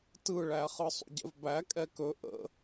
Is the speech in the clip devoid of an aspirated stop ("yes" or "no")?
yes